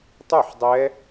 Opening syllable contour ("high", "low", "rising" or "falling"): falling